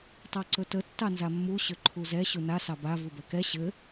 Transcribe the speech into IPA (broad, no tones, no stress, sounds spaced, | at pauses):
tˤ ɑ ǀ ɵ t ə tː ɑ n z a mː u ɕ ʏ ǃʰ u z ɛ ɕ u n a s ɑ b a v u b ɛ k ɛ ɕ ɘ